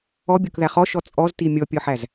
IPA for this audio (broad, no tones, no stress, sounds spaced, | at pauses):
ɔ bʲ o k ð æ χ ɔ ʃ ɔ t͡sʼ ɔ z t i mʲ ɔ pʲ ɔ ħ æ z